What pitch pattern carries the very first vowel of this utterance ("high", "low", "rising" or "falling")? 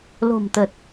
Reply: low